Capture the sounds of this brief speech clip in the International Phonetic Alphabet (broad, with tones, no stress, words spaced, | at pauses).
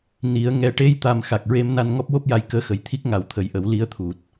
ni˨˩˦ə̯ ŋɛ˨˩˦ʈe˧jt̪a˨˩m xa˨˩k̚ɹe˧mna˧n ŋɔ˦˥p̚wo˦˥p̚ja˧j kəː˧xə˨˩jt̪ʰi˦˥k̚ŋa˨˩˦w t̪ʰə˨˩jʔə˨˩˦w li˧˥ə̯t̪ʰu˨˩t̚